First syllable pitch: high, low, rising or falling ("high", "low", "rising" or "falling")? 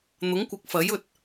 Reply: rising